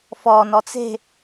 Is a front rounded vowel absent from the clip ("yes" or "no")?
yes